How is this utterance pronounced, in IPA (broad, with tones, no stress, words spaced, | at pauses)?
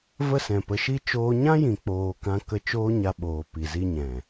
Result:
və˦˨ sɛ̃˨pə˨˦ʃi˦ t͡ʃoː˦ ɲã˦jĩ˨ k͡poː˧kã˦kə˦ t͡ʃoː˦ ɲa˧ɓoː˨ pi˨zi˧ɲɛ̃˨